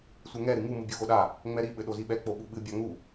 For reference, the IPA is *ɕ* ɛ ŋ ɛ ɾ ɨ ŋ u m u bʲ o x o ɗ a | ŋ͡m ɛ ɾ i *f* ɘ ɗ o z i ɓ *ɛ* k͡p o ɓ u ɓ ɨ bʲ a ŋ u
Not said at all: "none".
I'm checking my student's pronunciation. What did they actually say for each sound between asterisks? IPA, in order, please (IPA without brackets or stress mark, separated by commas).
sʷ, ɓ, ɛ